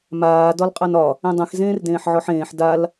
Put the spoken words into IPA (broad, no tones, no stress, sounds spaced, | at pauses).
m aː d ɒ l qʼ a n ɒ | ẽ dˤ ẽ x z ẽː r d ẽː ħ ʕ ɔ ħ ẽː ħ d a l